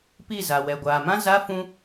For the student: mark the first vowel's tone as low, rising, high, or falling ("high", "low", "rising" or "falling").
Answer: falling